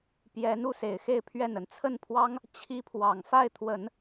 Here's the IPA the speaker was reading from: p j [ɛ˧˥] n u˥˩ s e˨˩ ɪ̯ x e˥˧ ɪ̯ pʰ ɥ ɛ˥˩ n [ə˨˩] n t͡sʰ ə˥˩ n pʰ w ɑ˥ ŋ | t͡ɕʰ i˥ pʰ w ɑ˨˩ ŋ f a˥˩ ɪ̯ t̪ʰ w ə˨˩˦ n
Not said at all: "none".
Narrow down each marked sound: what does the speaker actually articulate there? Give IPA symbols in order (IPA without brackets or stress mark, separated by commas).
ɛ˧˥, ə˨˩